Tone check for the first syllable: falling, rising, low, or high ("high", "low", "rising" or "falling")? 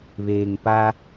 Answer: low